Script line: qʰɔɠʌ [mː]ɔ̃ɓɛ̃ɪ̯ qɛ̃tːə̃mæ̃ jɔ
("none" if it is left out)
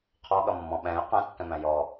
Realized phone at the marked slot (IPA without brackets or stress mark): mː